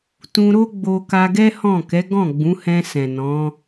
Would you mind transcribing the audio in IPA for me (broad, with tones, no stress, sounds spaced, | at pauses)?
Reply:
t ũ˧ ɾ o˦ ɡ͡b o˧ k a˧ ɡ ɛ˦ h ɔ̃˦˨ k ɛ˨˦ ɡ ɔ̃˦˨ ɡ͡b ũ˨˦ h ɛ̃˧ s ɛ̃˨ n ɔ̃˨˦